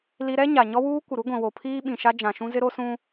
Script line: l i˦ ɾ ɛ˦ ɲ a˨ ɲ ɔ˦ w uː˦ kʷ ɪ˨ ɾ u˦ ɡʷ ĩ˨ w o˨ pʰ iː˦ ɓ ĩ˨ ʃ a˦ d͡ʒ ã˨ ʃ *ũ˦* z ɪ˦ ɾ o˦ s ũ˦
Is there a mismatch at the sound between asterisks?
no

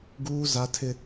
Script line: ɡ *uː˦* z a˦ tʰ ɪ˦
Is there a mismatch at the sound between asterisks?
no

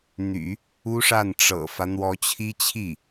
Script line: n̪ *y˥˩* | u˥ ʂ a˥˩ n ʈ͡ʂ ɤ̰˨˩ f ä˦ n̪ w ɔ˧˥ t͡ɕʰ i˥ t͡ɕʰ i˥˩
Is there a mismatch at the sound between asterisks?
yes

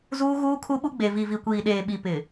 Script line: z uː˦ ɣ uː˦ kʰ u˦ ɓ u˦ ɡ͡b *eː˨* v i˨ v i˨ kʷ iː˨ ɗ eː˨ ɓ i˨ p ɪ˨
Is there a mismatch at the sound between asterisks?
yes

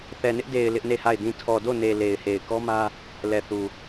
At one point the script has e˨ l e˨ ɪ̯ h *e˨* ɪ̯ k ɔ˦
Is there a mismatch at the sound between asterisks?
no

